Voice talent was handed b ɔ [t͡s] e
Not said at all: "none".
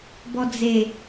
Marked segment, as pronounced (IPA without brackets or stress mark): d͡z